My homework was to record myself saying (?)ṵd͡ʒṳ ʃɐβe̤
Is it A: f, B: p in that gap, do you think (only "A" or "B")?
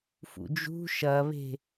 A